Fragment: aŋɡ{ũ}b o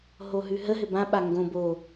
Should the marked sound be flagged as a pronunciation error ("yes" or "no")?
yes